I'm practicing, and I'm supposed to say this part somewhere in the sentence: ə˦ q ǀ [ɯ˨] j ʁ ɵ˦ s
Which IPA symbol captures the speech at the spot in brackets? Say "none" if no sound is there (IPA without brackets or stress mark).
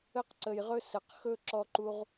ə˨